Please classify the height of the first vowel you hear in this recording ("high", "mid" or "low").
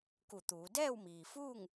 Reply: high